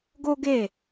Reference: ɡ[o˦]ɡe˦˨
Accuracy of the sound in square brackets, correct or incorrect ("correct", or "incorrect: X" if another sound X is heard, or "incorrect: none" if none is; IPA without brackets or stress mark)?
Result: correct